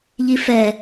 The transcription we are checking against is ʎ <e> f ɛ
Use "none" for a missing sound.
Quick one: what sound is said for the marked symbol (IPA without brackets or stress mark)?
i